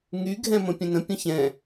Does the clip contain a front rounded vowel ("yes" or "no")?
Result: yes